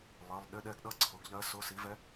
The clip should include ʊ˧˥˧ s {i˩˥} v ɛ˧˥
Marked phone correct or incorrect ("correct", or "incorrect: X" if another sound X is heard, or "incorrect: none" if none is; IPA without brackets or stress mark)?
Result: correct